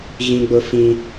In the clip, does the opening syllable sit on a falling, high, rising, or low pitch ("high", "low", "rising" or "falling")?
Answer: high